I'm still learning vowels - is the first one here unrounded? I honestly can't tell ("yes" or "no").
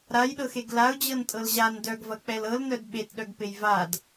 yes